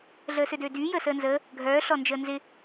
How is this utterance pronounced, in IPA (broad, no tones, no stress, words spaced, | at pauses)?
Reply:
ɮəːsødøːdyː jəːsəːnzəː | ɡʱœː ɬɔnd͡ʒəːnzɪ